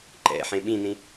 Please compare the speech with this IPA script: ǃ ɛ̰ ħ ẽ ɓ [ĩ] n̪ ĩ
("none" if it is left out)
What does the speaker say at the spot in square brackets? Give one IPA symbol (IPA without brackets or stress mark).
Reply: ĩ